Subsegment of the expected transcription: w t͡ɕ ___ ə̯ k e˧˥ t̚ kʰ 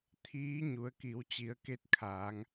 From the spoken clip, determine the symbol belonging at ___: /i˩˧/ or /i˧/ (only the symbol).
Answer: i˩˧